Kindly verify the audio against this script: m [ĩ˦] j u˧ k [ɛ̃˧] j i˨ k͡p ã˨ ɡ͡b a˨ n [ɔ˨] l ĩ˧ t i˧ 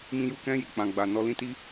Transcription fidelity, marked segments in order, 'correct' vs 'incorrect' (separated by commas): incorrect, correct, incorrect